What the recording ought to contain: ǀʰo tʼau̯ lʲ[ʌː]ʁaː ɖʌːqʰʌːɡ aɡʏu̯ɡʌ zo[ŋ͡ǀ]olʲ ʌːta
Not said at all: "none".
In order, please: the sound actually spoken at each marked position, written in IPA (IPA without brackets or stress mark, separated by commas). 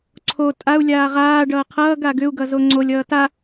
aː, ŋ͡ǀ